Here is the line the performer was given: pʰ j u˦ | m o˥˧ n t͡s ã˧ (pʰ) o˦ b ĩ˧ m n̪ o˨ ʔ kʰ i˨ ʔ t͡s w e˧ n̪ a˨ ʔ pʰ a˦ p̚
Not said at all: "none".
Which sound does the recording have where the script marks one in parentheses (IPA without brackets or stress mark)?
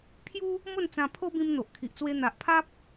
pʰ